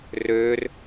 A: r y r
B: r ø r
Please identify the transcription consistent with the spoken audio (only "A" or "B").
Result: B